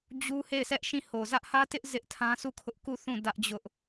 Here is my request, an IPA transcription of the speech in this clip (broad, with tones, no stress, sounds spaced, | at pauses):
d͡ʑ u˦ h e˦˨ ɪ̯ s ɛ˦ ʔ ʃ ĩ˦˨ h o˨ z ä˦ ʔ h ä˦ t ɪ˦ ʔ z ɪ˦ ʔ tʰ ã˦ s u˦˨ kʰ ʊ˦ ʔ k u˦˨ θ ũ˦˨ d ä˦ ʔ d͡ʑ ʊ˦ ʔ